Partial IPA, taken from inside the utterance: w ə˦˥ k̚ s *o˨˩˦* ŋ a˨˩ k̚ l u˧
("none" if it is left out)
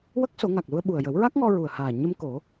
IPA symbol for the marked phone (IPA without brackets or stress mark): o˨˩˦